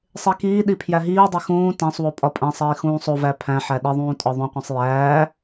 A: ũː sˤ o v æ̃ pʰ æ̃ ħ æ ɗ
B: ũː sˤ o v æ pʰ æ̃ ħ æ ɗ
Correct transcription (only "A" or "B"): B